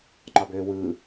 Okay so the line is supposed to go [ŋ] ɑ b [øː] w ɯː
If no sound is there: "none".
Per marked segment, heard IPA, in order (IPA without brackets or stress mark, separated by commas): ŋ͡ǃ, øː